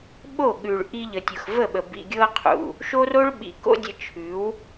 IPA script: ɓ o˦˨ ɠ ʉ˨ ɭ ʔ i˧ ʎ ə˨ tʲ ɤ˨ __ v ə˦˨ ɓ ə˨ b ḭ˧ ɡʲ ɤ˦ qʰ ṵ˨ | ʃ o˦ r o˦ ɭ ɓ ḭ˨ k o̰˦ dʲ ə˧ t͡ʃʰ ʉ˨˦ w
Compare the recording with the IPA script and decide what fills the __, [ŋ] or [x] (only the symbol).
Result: x